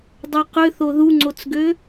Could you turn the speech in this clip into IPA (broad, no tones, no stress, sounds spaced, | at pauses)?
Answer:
dˤ œ q ʏ θ o ð u ŋ͡ǀ o t͡s ɡ ø